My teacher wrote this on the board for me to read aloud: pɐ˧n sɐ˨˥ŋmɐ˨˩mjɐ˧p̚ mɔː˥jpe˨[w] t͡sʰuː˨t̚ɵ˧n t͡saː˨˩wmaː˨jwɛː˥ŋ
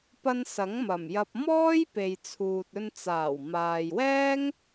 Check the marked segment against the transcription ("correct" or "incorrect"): incorrect